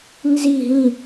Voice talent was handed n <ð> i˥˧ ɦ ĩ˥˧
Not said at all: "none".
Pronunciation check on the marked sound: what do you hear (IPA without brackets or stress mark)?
z